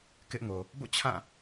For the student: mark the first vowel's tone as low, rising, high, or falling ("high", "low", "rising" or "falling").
high